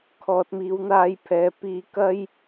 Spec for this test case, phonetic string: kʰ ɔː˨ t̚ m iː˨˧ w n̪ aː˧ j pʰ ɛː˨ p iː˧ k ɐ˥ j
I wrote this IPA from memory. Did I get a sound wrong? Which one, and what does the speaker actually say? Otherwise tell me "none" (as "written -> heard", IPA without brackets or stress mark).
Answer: none